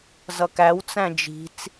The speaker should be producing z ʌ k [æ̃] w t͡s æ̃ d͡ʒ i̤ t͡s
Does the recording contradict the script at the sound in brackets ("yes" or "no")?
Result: yes